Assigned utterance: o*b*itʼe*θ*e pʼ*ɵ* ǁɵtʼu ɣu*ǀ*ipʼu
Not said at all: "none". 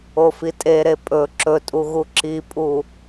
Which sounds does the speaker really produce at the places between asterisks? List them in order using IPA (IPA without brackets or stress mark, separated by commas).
f, ɾ, ɵ, ǁ